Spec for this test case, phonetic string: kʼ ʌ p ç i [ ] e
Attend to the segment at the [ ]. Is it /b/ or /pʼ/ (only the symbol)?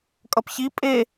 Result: pʼ